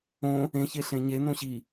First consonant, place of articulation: palatal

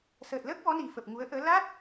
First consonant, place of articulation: alveolar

